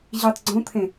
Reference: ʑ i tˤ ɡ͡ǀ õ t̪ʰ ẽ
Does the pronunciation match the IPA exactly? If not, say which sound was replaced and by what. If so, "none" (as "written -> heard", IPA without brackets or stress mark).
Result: none